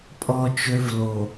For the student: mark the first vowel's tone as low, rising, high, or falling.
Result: high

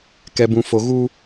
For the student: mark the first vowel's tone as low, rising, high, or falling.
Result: low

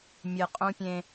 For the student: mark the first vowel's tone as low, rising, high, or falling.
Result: low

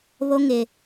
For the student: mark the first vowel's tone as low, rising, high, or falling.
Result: high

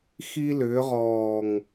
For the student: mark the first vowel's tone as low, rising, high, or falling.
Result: high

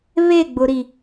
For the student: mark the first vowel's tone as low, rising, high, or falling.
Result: falling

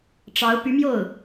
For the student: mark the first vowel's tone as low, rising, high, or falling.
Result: rising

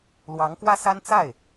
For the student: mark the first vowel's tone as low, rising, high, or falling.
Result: rising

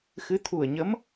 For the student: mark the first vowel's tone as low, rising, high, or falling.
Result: rising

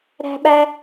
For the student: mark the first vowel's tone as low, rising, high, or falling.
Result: high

